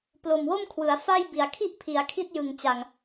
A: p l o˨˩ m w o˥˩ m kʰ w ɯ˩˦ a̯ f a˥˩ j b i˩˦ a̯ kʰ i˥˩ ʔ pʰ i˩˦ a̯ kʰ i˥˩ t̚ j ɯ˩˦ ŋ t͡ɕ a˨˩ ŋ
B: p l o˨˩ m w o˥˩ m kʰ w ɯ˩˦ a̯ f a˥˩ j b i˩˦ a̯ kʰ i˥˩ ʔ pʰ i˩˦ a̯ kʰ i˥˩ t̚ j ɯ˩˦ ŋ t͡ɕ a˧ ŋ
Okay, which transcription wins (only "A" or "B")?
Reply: A